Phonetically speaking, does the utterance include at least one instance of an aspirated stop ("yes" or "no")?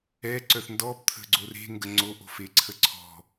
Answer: yes